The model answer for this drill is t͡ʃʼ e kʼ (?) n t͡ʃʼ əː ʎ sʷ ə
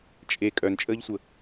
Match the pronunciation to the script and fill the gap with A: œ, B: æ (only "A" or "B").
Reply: A